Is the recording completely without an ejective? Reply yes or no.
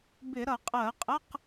no